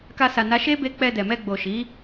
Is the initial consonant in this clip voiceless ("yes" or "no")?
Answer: yes